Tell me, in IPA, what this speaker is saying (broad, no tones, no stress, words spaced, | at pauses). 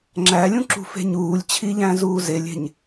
ŋ͡ǁælʲũǁṳfe̤ ɲuːlʲt͡ɕʰiʎæ̃zuː zelʲe̤ɲ